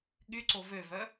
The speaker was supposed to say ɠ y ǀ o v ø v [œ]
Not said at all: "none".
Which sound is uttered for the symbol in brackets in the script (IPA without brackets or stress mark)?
œ